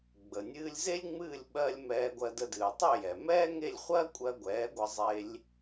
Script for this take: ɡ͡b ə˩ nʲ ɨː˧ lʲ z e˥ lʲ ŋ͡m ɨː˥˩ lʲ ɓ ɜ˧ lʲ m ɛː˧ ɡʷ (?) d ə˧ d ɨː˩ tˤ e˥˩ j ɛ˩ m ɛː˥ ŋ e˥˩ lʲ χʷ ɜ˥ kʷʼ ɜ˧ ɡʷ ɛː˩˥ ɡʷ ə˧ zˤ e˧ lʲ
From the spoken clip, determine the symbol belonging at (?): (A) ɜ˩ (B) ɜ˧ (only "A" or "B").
B